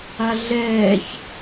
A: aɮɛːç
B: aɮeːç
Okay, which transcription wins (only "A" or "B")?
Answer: A